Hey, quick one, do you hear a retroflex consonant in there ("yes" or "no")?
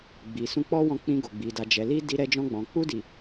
no